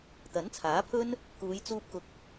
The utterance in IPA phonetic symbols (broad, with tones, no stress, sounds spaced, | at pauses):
t̪ ɐ˨˥ n t͡sʰ aː˨˥ pʰ ɵ˥ n | k uː˨˧ j t͡s uː˧ p̚ k ʊ˨ k̚